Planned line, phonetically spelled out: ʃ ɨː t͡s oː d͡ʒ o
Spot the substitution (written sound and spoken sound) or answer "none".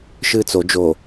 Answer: oː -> o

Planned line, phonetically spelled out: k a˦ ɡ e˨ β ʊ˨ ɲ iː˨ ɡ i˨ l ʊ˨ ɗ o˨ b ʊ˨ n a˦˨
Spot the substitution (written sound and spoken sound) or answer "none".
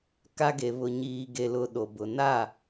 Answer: i˨ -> e˨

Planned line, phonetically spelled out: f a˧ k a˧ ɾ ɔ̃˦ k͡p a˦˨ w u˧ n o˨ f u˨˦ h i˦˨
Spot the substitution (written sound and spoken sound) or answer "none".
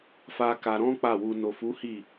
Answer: none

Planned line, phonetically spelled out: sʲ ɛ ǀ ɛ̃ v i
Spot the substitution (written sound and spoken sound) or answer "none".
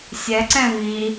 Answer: none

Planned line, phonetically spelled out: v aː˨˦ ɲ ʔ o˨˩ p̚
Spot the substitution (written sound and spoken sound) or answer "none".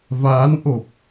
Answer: ɲ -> n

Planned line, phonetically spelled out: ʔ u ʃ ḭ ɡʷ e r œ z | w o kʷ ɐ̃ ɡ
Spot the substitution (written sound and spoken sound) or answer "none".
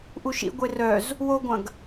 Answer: kʷ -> ɡʷ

